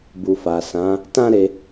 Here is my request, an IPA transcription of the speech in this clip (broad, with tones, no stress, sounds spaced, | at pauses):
b u˨ f a˨ s ã˨˦ | t ã˦ ɾ e˧